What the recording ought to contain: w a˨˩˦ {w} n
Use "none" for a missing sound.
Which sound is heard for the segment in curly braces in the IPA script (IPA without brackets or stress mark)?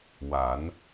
none